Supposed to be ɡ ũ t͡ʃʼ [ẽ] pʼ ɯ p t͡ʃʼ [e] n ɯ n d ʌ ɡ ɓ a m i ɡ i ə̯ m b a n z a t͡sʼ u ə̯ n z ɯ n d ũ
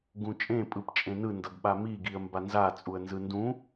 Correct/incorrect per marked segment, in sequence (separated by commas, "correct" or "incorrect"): correct, incorrect